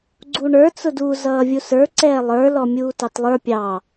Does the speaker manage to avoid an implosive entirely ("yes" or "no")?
yes